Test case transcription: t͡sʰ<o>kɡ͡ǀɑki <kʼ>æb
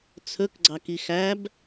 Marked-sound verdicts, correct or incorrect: incorrect: ɵ, incorrect: x

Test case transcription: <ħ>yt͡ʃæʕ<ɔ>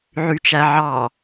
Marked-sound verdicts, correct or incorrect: incorrect: ʕ, incorrect: ɑ

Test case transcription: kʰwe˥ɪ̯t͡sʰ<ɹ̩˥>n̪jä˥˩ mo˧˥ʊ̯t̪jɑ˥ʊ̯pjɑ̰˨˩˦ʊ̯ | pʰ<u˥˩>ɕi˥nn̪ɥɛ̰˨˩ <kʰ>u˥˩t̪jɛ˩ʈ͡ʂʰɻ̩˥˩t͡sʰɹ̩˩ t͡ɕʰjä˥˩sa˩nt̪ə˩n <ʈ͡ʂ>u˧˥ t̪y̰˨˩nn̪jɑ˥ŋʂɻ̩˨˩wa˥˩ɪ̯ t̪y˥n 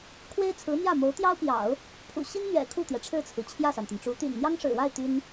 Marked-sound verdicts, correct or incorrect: incorrect: ɹ̩˧˥, incorrect: ṵ˨˩, correct, correct

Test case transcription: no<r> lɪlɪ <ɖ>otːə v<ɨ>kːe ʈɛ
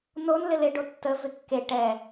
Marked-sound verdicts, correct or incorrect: incorrect: n, correct, incorrect: ɪ

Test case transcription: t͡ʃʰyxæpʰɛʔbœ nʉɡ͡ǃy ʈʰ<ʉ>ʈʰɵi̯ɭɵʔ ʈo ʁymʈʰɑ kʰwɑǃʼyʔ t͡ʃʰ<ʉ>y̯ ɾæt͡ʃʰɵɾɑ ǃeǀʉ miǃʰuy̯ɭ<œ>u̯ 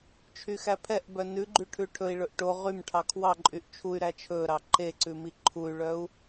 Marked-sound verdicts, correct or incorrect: correct, incorrect: u, correct

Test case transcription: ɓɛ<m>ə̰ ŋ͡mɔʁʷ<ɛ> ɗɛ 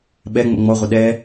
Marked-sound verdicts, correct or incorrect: incorrect: ŋ͡m, incorrect: ə

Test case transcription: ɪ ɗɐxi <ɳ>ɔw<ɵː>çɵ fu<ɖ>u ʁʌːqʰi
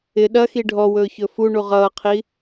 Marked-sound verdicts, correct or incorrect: incorrect: ɖʱ, correct, incorrect: ɳ

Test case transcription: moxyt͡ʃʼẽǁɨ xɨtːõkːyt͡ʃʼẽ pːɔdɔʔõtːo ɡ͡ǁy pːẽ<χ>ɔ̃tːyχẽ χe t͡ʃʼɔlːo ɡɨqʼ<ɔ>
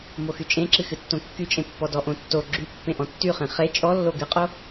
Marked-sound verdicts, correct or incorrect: incorrect: ʔ, incorrect: o

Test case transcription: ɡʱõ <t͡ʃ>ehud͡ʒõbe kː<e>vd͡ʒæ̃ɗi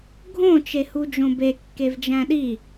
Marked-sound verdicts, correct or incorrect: correct, correct

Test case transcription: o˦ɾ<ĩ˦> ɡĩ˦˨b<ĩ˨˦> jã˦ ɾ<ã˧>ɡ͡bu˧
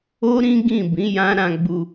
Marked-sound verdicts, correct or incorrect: correct, correct, correct

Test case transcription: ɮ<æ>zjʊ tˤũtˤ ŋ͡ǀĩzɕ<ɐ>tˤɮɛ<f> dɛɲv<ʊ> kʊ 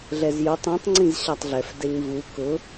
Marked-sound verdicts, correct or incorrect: incorrect: ɛ, incorrect: a, correct, incorrect: u

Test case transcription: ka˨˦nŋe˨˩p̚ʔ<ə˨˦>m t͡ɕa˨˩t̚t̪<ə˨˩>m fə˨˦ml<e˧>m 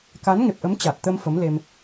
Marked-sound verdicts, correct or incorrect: correct, incorrect: ə˧, correct

